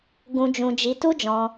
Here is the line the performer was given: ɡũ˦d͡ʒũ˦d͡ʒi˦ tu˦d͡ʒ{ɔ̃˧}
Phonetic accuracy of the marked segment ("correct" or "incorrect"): correct